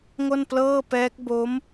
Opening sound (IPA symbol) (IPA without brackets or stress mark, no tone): ŋ